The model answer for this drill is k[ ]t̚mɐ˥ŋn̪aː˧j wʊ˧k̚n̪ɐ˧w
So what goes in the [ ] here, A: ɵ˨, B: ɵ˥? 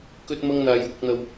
B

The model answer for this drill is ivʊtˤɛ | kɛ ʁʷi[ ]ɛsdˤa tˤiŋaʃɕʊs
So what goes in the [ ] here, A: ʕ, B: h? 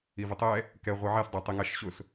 A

